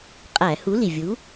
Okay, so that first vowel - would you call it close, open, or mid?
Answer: open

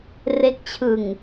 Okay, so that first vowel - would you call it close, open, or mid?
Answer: mid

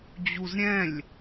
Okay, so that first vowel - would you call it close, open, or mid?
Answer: close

